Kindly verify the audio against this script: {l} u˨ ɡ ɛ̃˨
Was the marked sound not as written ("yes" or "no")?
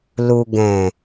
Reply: no